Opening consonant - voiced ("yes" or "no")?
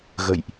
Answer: yes